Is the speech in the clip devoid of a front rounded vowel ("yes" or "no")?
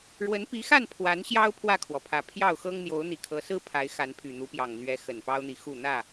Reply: no